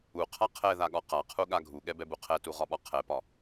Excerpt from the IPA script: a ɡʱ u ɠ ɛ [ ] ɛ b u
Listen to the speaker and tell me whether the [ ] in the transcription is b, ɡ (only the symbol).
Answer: b